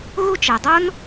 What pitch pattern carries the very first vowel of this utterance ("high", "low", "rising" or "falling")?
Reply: high